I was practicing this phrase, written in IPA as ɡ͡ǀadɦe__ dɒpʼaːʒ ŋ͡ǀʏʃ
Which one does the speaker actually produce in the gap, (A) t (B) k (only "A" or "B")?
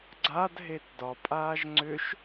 A